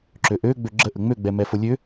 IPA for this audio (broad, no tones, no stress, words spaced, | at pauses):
ǁøʔø ɡ͡bøɡ͡ǁəʔə ŋ͡møɡ͡bɛmɛ folʲø